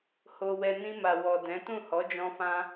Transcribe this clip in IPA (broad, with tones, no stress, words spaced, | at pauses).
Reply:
ho˧wɛ˧ nĩ˧ma˨ wɔ˨dɛ̃˨˦ tũ˦˨hɔ˨˦d͡ʒɔ̃˧fã˧